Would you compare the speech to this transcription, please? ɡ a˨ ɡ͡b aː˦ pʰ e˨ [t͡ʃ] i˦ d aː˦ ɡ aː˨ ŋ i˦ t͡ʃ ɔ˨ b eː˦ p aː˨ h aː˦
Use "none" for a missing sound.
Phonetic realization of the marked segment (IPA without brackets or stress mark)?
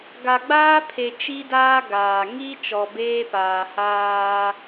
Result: t͡ʃ